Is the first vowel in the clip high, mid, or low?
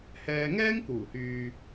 mid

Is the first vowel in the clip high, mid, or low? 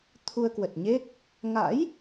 high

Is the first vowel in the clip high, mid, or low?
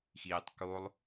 high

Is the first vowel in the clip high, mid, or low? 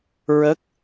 mid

